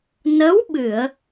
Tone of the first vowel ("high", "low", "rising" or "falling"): rising